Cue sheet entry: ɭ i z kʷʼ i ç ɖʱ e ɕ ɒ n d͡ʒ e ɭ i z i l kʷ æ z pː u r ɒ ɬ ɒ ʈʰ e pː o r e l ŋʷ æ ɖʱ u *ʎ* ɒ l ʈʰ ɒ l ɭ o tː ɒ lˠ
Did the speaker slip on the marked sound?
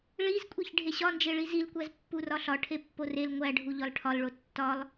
no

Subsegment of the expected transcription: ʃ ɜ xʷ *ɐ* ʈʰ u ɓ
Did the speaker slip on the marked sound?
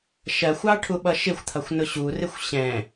yes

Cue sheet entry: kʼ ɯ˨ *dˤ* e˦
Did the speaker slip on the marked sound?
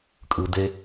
yes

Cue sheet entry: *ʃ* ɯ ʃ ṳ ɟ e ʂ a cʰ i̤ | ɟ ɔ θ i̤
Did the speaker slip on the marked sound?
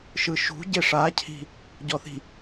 no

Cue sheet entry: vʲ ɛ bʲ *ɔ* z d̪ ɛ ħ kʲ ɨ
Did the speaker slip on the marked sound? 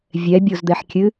yes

